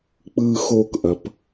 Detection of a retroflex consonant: absent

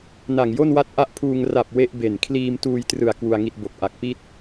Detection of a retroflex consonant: absent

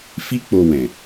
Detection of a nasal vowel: present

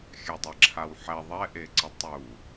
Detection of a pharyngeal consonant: present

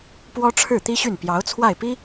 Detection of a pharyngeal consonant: absent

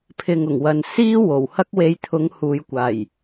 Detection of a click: absent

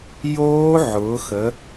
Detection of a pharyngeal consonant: present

